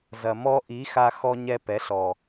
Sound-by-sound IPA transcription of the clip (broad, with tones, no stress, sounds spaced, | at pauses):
z ɐ˨ m ɔ˦ ʔ i˨˦ x a˧ x ɔ˧ ɲ ɛ˧ p ɛ˨˦ ɬ ɔ˨